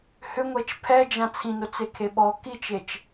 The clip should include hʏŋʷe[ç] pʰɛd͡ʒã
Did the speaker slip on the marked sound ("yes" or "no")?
yes